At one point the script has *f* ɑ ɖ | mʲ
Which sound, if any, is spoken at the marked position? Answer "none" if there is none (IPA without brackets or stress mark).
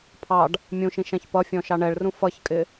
pʰ